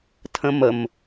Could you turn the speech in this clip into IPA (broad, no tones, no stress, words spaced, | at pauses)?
tʰə̃məm